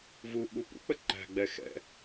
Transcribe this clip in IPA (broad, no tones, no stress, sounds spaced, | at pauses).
v u ɓ u p ṵ k͡p ə ǃ æ̤ ɡ͡b ɛ x ɛ̰